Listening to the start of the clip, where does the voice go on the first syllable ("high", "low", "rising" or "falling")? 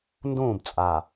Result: falling